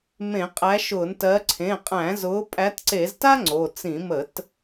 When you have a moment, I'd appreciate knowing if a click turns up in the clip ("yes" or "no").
yes